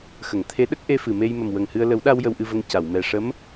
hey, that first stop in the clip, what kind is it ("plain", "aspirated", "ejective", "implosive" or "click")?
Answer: aspirated